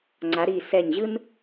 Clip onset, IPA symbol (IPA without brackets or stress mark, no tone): ŋ͡ǀ